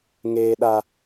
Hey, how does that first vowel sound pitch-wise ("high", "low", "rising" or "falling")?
low